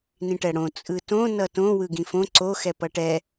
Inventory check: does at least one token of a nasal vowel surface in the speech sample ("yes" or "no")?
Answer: yes